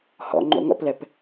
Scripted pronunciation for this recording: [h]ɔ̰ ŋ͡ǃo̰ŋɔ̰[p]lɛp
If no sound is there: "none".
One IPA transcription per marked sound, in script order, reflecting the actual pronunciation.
h, p

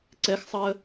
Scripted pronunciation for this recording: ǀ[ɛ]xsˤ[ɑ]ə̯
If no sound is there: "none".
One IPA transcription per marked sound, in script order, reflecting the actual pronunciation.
ɛ, ɑ

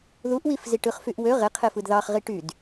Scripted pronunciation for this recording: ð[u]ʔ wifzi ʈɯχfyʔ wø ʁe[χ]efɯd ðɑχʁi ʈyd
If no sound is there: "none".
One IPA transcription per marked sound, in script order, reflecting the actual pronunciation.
u, qʰ

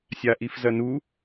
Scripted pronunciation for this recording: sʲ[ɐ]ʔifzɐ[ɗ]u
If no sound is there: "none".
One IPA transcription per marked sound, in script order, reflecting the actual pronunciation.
a, n

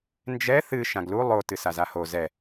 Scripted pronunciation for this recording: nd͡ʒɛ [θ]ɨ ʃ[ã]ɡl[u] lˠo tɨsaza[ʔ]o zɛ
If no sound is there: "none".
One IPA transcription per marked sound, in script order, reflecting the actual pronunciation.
θ, ã, u, h

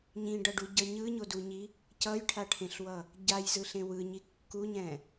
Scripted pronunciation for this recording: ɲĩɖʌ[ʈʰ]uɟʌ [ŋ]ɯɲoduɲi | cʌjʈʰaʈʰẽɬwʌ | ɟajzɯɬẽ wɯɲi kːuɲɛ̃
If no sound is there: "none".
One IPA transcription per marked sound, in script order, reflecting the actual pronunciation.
ɖ, ɲ

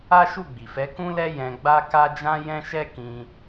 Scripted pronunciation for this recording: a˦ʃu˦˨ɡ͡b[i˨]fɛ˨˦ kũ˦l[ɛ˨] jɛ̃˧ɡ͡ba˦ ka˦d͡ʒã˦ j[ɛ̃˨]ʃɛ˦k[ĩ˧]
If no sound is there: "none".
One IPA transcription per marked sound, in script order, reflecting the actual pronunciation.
i˨, ɛ˦, ɛ̃˦, ĩ˧

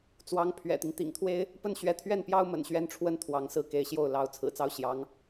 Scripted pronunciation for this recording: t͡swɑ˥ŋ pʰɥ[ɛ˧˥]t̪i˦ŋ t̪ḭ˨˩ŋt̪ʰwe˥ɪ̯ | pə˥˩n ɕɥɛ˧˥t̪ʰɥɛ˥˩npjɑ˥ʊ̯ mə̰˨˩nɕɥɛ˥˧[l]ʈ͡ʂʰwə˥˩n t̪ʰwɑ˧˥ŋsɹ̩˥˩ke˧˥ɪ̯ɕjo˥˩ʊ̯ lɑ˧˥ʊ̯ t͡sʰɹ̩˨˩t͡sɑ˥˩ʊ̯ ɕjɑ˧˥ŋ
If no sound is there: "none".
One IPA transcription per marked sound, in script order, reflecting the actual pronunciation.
ɛ̰˨˩, n

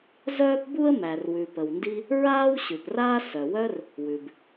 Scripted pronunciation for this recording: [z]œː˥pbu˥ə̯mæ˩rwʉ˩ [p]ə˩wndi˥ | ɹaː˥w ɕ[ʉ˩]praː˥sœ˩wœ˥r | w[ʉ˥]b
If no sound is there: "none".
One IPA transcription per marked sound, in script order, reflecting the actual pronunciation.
z, p, ʉ˩, ʉ˩

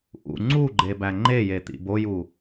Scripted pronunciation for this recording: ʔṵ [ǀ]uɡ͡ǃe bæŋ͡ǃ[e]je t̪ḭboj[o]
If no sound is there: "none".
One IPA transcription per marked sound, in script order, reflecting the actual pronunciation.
ŋ͡ǀ, e, u

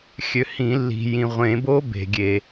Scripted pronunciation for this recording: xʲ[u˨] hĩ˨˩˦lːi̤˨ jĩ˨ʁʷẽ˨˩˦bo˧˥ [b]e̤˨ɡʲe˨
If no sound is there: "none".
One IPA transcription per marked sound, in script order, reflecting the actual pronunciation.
ø˨, b

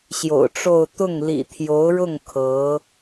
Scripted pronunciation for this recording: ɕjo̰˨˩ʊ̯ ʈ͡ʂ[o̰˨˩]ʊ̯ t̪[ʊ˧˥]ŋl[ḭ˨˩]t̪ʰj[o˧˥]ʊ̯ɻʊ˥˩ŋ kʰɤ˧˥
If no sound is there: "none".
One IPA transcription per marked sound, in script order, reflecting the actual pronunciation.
o˥˧, ʊ˥˩, ḭ˨˩, o˧˥

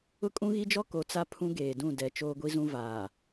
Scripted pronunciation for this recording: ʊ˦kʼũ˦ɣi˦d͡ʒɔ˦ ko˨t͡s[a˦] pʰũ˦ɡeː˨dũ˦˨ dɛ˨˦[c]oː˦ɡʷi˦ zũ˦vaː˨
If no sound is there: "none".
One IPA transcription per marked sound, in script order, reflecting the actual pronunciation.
a˦, t͡ʃ

